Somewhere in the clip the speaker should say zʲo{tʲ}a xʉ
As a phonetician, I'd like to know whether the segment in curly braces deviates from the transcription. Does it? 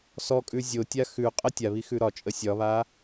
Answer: no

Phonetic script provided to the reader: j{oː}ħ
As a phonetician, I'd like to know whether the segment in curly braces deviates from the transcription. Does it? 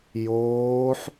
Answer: no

